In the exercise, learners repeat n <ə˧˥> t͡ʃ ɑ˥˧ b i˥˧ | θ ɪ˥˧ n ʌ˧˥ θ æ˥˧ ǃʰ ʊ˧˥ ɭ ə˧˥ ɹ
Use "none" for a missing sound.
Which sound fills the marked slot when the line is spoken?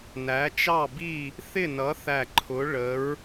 æ˧˥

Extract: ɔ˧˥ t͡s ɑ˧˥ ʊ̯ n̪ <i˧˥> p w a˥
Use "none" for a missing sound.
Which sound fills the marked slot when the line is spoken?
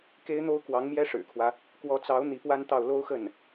i˧˥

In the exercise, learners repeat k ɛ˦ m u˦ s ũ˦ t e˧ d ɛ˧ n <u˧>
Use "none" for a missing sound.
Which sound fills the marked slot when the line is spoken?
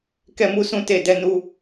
u˧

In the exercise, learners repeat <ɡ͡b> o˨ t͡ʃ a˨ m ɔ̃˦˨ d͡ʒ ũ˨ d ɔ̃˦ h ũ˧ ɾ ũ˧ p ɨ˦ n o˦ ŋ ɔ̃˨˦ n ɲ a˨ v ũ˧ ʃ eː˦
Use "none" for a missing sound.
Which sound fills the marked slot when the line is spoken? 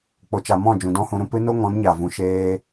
k͡p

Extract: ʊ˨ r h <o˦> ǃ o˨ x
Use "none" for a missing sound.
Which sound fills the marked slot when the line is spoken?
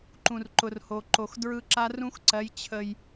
o˨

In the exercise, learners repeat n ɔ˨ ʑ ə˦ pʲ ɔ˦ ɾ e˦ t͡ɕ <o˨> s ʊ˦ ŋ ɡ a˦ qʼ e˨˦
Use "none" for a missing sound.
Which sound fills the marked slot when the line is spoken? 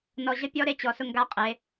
ɔ˨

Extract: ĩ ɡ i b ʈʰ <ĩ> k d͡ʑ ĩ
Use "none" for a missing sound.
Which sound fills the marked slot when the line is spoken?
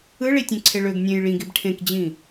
ẽ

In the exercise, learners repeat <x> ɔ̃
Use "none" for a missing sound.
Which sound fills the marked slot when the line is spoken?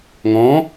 ŋ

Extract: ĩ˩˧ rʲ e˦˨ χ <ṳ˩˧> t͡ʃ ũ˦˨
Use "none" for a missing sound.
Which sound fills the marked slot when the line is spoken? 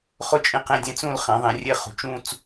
ṳ˩˧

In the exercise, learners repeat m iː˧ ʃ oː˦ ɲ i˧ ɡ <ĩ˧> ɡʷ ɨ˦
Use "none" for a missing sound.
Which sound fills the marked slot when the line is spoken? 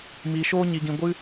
ĩ˧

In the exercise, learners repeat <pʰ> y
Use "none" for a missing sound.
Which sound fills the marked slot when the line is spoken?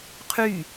qʰ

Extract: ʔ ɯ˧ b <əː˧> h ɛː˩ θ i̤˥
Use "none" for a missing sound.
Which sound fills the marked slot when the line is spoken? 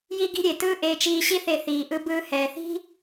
ɯː˧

